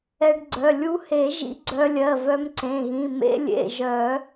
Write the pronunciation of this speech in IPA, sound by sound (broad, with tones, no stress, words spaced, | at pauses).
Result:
ɛ˧ɖɡ͡ǀœ˩˧˩ lʲu˧he˨˩˦ ʒḭ˧ɡ͡ǀœ˧lʲɜ˩˧˩ vœ˧mǀẽ˩˧˩ɣĩ˩˧˩ mḛ˧ lʲḛ˩˧˩ʒœ˨˩˦